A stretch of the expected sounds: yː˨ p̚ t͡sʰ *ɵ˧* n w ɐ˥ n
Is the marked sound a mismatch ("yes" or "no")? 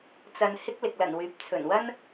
yes